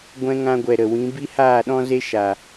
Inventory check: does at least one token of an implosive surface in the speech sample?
yes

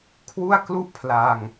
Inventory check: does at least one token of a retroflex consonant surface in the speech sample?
no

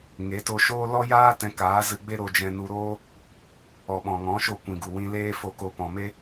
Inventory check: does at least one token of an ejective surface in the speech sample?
no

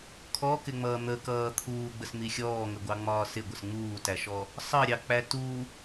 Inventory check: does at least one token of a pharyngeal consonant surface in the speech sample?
no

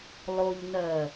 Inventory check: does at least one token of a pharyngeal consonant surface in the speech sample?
no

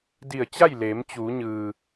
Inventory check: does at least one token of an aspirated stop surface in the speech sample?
no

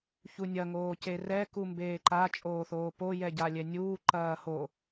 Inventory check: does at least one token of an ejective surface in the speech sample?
yes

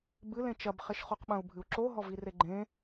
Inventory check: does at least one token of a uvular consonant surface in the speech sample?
yes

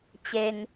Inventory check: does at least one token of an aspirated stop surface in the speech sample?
no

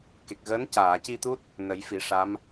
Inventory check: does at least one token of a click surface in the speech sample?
no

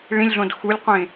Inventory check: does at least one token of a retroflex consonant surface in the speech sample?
yes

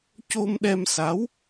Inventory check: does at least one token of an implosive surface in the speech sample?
yes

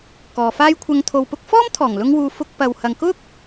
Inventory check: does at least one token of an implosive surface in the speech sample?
no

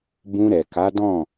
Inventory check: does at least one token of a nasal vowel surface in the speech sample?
yes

